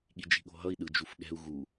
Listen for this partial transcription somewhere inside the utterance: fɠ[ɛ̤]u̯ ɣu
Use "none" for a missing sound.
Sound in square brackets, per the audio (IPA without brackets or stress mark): ɛ̤